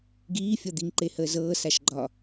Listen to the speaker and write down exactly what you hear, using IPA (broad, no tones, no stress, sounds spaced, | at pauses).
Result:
ɡ iː fʲ ɒ d̪ i ŋ ǃ e h əː z ɤː s a ʃ ɡ͡ǃ ɒ